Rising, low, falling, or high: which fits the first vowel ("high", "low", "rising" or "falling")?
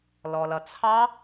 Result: low